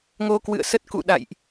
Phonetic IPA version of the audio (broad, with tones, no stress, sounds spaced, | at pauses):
ŋ o˧ k w ɨ̰˧˨ ə̯ s ə˦˥ t̚ k ṵ˧˨ ɗ a̰˧˨ j ʔ